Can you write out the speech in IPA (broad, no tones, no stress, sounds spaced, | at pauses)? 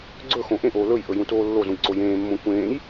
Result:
ɡ͡ǀ ɵ x õ ʔ ẽ ʔ oː l ɵ j ʔ ɵ j ũ t oː lː o z ũ j ǀ o j ẽː mː õ kʷ ẽː j